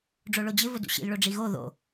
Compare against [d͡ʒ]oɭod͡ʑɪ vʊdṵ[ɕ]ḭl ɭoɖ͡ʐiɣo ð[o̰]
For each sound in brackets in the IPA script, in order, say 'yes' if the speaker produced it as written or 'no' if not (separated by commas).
no, yes, yes